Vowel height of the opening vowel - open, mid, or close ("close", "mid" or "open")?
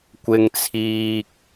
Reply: close